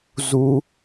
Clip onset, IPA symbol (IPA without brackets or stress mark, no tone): z